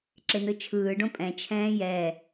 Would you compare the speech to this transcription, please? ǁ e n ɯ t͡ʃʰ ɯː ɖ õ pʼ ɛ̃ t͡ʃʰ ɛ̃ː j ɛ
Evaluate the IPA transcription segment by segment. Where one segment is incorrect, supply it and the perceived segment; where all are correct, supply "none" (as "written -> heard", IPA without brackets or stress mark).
none